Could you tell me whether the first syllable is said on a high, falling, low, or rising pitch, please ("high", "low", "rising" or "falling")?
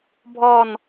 falling